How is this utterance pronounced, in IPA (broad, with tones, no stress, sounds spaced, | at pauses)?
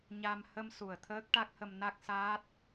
ɲ a˧ m h ə˧ m s u˨˩ ə̯ t̪ʰ əː˦˥ k̚ ʈ a˦˥ k̚ h ə˧ m n a˦˥ k̚ s aː˦˥ t̚